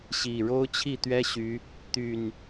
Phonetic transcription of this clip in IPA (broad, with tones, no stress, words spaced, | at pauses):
ɕi˨˩ ɻo˦ʊ̯t͡ɕʰi˥˨t̪ɥɛ˦ɕy˨˦ | t̪y˨˩n